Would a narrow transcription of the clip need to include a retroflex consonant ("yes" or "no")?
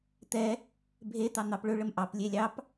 yes